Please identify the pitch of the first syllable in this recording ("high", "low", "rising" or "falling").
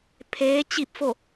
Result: rising